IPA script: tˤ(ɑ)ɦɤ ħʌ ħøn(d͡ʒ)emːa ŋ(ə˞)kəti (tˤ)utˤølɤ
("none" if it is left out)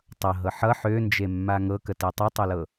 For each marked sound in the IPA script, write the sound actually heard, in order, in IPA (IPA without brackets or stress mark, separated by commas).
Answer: ʌ, d͡ʒ, ɤ, tˤ